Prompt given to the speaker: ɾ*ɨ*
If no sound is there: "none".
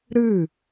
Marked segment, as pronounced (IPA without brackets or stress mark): ɨ